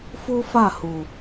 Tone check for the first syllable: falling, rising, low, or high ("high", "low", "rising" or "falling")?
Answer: high